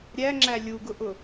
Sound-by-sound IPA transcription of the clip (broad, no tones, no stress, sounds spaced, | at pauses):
ɾʲ æ ŋ͡ǁ æ lʲ u ɡ ʊ ʔ ʊ